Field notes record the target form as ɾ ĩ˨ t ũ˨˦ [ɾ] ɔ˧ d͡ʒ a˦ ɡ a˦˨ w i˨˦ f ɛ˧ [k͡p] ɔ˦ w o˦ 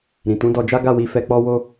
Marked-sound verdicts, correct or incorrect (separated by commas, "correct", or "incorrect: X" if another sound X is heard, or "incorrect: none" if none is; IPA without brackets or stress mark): incorrect: d, correct